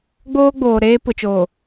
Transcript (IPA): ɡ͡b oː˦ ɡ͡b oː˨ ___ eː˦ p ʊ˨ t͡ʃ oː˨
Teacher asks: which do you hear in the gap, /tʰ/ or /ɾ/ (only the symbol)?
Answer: ɾ